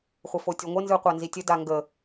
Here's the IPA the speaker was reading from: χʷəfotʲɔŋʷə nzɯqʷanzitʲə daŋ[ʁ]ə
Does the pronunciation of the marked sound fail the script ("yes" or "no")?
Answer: yes